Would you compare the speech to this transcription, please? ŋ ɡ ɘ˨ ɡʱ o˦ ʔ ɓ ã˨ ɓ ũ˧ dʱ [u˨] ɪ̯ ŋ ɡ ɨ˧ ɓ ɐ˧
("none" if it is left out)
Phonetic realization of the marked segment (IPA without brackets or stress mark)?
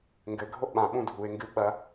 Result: u˨